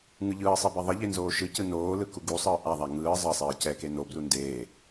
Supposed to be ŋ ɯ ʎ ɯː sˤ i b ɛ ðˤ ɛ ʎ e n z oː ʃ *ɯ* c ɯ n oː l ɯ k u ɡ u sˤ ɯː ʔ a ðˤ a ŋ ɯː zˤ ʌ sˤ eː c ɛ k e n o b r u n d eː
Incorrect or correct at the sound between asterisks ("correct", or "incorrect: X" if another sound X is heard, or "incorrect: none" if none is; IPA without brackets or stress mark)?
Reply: correct